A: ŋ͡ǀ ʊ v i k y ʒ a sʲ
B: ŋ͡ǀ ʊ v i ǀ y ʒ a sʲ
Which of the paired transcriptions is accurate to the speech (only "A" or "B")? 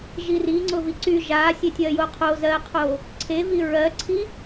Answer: B